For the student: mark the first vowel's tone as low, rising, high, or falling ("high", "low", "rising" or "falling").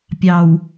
low